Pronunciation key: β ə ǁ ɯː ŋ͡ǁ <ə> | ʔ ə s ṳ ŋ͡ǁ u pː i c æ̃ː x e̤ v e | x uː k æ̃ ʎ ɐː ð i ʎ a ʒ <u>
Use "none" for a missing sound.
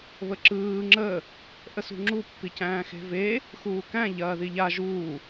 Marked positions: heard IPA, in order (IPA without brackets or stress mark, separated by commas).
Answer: ə, uː